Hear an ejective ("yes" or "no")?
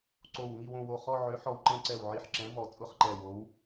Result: yes